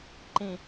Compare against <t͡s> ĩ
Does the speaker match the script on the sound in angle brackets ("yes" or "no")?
no